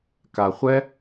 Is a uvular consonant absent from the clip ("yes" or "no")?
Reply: no